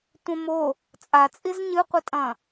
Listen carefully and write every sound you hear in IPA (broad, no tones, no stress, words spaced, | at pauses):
tʷɐ̃mo | t͡sʼat͡sʼiz ɲɨqʷɨtʼɐ̃